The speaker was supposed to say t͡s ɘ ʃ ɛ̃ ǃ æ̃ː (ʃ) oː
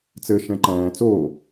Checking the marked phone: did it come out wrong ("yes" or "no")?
yes